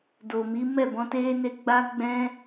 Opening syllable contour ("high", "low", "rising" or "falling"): low